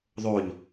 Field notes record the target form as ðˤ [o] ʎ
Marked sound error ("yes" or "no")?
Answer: no